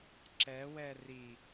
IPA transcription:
ǁ ɛ w ɛ r i

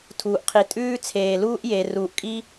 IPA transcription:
tʰ uː˩ ʔ qʰ i˩ tʼ ʉː˧ t͡sʰ eː˩ l uː˧ ʔ j e˩ r uː˩ ʔ kʼ i˥

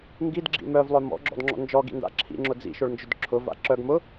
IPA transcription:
ŋ ɡ i d ɡ͡ǁ ḭ m œ v lˠ œ m ɔ̰ ɡ͡ǁ ɔ̰ d ŋ͡ǁ ɔ̰ n d͡ʒ ɔ ɡ ḭ n d a̰ ǁʰ ḭ ŋ͡ǁ ʊ d͡z ḭ ʃ ʊ ɭ n d͡ʒ ʊ d ǁʰ ʊ v a̰ ǁ œ ɡ m ʊ

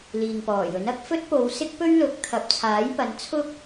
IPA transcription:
l iː˨ ŋ p ɔː˨˩ j ɵ˨˥ n ɐ˨˥ k̚ f ɵ˥ t̚ p o˨˧ w s ɪ˥ k̚ p ɵ˥ ɥ l ʊ˨˥ k̚ t̪ʰ ɐ˨˥ p̚ t͡sʰ aː˨˥ j p ɐ˨˥ n t͡sʰ ʊ˥ k̚

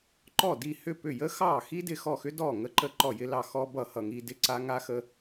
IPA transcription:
ǃ ɔ˥˩ d i˥˩ h ʏ˥˩ p ʏ˥˩ j ə˥ x ɑ˥˩ x i˥ d ɪ˥˩ x ɔ˥˩ x ʏ˥ d ɔ˥˩ ŋ ə˥ ǃ ə˥˩ ǃ ɔ˥˩ j ɪ˥ l ɑ˥˩ x ɔ˥ b ʌ˥˩ h ʌ˥˩ ŋ i˥ d ɪ˥˩ ǀ a˥ ŋ a˥ x ə˥

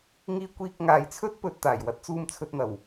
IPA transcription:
ŋ iː˧ kʷ iː˧ k̚ ŋ aː˨ j t͡sʰ ɵ˥ t̚ p ɵ˨ t̚ t̪ aː˨˩ j w ɐ˥ t̚ t͡s uː˧ m t͡sʰ ɵ˧ t̚ n̪ ɐ˨˩ w

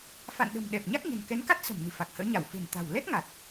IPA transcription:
f a̰˧˨ n ɗ ə̤˨˩ m ɗ ɛ˨˩ p̚ ɲ a˦˥ k̚ ɲ ə̤˨˩ n k ɛ˨˦ n k a˦˥ t̚ s ə̤˨˩ m n ɨ̤˨˩ f a˨˩ k̚ h ə̰ː˧˥ ɲ a˧˩ w f e̤˨˩ n t̪ a̤˨˩ w l ɛ˦˥ t̚ ŋ a˨˩ t̚

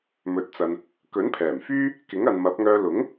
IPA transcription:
m ɵ˨ t̚ t͡s ɐ˨ n | k ɵ˨˥ n pʰ ɛː˨˩ m f yː˥ | k ɪ˨˥ ŋ ɐ˨ n m ɐ˨˥ p̚ ŋ œː˧ l ʊ˨˥ ŋ

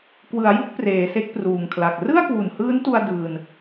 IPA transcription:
k w ɯ˩˦ a̯ j u˦˥ k̚ p r eː˩˦ s e˦˥ k̚ p r uː˨˩ ŋ kʰ l a˨˩ k̚ r ɯ˥˩ a̯ k w u˨˩ n h ɯː˦˥ n t u˧ a̯ d ɯː˧ n

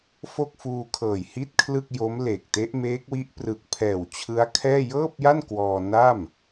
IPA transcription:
f o˥˩ k̚ f uː˧ kʰ ɤː˨˩ j h i˥˩ t̚ kʰ l ɯ˥˩ k̚ j o˦˥ m l e˨˩ k̚ t e˦˥ ʔ m eː˦˥ k̚ w i˦˥ ʔ p r ɯ˨˩ k̚ pʰ ɛː˨˩ w t͡ɕʰ ɯ˦˥ a̯ kʰ ɛː˥˩ j ɤː˥˩ p̚ j a˥˩ n k w ɔː˧ n a˥˩ m

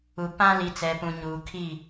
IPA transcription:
u˨ p ã˦ l i˨ t͡s ɛ˨ p ũ˨ ɲ uː˨ kʰ i˦˨

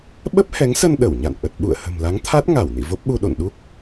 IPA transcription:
ɓ ə˦˥ p̚ h ɛ˨˦ ŋ s ə˧ n ɗ ə˧˩ w ɲ a̰˧˨ n ʔ ə˨˩ t̚ ɓ ṵ˧˨ ə̯ h ə̤˨˩ m l a˨˦ ŋ t̪ʰ a˦˥ t̚ ŋ a˧˩ w n ḭ˧˨ v o˦˥ p̚ ɓ u˧ ɗ o̰˧˨ n ɗ u˦˥ k̚

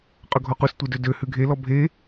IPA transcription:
qʼ ɵ ɡʱ ɔ q u s tʷ e d ø d ø h ʉ ɡʱ e l ɔ bʱ e

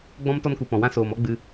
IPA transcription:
ɡ͡b ɔ̃˦ m t ɔ˦ n k u˨ p ɔ̃˨ w ã˦ s oː˨ m ɔ˦ ɡ͡b ɨ˧

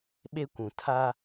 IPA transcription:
ɓ e˦ kʷ ũ˨ tʰ a˦

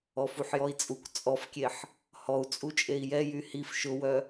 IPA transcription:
ɔ f u ħ j ɔ i̯ t͡sʼ u k t͡sʼ ɔ f kʲ e ħ | h ɔ u̯ t͡sʼ u t͡ʃʼ e i̯ j ɛ j y h i f ʃ ʊ w œ

